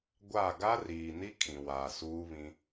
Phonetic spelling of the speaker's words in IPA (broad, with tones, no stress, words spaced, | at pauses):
ɡʷa˦˨ ɡa˦riː˨ni˦ kʰĩ˨waː˨suː˦βĩ˦